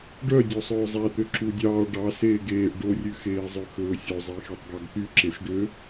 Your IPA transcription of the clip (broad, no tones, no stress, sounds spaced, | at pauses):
ɖ œ dʲ o sˤ ɵː zˤ æ t̪ ø ǁ u dʲ ɑː ɖ ɑ s eː ɡ eː ʔ ɖ o rʲ ʉ x eː zˤ ø x ɵː sʲ o zˤ e x e tˤ ɡ ɑ ɡ t̪ y ǁ e s ɖ ø